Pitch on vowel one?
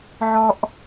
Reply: high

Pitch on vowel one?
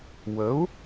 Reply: rising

